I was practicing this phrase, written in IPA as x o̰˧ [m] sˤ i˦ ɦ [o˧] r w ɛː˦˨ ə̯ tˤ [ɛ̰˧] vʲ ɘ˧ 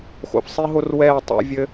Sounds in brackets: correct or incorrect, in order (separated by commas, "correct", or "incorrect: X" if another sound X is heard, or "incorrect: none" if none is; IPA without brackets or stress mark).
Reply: incorrect: f, incorrect: o˦, correct